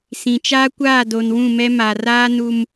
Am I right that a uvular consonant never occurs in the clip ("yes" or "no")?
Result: yes